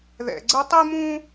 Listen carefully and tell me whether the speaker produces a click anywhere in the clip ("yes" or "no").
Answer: yes